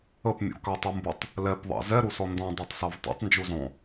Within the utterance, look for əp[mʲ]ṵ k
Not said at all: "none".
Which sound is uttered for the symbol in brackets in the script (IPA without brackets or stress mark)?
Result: mʲ